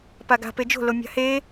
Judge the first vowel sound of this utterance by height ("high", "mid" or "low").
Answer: low